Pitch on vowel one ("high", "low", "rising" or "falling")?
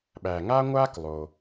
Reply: low